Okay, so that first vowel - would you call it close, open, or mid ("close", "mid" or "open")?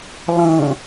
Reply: mid